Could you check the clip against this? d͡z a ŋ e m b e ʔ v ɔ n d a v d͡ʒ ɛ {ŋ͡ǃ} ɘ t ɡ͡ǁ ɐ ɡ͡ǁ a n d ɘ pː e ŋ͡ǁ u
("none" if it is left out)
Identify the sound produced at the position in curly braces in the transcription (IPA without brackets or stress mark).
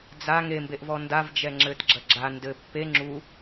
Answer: ŋ͡ǁ